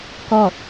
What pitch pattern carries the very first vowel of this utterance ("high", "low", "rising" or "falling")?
falling